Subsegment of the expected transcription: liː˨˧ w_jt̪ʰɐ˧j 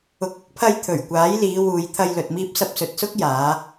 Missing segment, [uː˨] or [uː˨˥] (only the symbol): uː˨